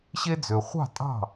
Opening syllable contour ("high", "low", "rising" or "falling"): high